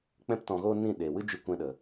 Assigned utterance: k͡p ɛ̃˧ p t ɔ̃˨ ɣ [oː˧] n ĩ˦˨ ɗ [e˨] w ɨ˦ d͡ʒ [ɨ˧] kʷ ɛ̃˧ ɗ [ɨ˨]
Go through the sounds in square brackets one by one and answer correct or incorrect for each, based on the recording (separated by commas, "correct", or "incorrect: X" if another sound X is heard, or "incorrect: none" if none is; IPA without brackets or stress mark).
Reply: correct, correct, correct, incorrect: ə˨